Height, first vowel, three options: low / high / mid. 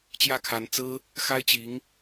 low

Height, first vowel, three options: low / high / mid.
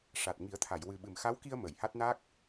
low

